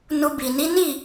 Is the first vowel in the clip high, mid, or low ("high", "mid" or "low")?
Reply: high